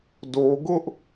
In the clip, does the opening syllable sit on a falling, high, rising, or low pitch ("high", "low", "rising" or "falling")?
high